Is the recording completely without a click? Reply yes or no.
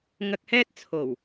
yes